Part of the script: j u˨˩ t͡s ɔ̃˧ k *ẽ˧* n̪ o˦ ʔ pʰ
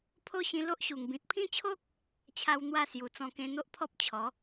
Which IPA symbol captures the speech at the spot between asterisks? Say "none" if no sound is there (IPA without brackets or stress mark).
ẽ˦